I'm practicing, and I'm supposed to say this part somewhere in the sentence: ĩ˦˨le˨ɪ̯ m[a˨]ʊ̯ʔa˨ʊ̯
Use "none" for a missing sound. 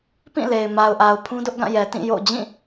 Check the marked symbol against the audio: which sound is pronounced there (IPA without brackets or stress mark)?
a˨